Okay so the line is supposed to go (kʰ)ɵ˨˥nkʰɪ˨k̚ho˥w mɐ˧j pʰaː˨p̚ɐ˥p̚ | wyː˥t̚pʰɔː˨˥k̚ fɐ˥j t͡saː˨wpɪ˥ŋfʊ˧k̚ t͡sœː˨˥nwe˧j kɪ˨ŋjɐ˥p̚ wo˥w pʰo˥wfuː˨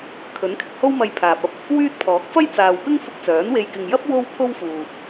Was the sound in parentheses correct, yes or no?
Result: yes